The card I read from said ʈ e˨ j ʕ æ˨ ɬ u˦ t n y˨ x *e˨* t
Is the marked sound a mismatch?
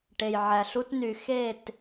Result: yes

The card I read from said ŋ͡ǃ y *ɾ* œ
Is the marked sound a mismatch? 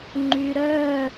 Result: no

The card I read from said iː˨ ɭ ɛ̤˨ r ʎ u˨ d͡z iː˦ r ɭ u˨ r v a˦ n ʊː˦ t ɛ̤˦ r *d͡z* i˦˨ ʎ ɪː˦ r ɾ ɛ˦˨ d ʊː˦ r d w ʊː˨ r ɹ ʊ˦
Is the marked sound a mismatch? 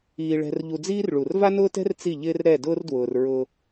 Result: yes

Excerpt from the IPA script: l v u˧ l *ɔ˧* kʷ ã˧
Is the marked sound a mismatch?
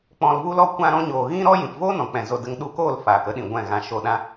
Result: no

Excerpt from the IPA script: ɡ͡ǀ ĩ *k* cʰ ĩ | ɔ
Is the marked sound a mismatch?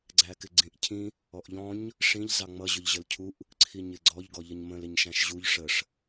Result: yes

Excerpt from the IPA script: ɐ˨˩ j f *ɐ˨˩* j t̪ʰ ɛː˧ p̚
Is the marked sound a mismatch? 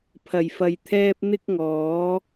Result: yes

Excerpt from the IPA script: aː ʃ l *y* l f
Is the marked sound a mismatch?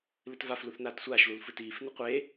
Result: yes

